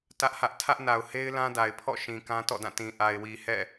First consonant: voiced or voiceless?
voiceless